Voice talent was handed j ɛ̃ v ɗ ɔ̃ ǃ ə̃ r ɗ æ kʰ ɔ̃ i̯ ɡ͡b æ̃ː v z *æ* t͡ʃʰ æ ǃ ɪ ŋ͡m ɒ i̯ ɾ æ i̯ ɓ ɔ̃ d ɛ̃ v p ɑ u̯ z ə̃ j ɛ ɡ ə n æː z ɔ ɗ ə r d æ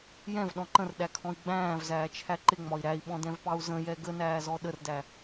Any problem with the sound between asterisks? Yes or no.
yes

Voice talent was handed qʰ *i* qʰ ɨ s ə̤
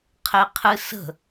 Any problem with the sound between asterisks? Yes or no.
yes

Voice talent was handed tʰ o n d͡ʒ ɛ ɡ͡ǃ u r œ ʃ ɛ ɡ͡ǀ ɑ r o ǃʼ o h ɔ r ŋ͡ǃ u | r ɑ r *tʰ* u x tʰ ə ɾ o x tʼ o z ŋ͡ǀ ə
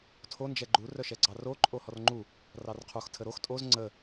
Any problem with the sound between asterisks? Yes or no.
yes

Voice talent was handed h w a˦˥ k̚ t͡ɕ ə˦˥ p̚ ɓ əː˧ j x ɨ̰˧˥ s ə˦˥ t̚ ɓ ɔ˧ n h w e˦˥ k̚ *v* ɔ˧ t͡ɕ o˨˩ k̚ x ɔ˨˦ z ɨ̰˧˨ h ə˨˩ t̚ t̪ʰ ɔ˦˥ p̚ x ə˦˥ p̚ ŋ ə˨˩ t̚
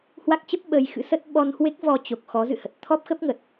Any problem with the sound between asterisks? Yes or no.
no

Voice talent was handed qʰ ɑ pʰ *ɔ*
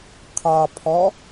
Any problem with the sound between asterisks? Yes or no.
no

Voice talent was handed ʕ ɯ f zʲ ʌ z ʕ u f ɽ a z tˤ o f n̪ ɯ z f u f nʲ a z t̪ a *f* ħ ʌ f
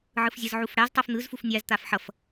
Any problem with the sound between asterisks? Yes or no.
no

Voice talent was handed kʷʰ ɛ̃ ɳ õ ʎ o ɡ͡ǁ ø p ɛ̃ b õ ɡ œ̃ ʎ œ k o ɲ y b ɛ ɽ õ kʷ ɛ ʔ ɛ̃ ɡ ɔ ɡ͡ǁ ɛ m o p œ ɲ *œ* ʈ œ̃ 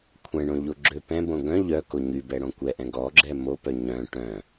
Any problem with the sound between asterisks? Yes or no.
yes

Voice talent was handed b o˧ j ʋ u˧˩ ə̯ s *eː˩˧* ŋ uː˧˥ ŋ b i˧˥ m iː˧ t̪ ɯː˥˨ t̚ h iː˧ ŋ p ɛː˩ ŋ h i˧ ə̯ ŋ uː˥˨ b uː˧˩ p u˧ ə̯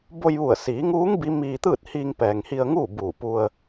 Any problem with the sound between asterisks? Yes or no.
yes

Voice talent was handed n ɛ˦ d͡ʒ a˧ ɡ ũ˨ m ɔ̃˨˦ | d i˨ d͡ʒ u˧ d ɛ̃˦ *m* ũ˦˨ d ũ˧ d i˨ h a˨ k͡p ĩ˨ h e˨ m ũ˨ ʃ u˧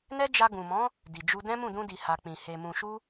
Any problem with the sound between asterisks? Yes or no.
no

